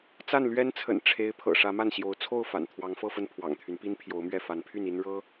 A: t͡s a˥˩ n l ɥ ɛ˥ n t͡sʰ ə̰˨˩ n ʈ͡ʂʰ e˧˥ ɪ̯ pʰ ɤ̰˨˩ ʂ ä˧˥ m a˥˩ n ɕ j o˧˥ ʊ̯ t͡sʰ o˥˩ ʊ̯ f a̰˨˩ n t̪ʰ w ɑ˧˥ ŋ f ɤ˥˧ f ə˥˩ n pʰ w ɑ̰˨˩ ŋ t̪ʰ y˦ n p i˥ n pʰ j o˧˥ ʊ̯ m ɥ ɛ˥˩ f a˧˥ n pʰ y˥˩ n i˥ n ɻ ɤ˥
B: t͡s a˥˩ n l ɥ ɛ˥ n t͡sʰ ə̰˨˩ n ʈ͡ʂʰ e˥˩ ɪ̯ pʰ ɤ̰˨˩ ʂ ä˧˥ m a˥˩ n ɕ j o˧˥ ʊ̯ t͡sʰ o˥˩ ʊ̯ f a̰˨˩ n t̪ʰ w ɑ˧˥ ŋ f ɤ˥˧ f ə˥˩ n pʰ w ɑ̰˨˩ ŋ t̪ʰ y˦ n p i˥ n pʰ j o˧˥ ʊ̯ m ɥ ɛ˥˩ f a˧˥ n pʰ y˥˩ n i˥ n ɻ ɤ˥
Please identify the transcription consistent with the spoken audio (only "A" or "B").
A